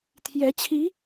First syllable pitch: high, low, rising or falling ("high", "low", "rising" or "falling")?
rising